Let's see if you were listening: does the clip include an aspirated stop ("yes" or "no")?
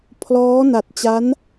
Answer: yes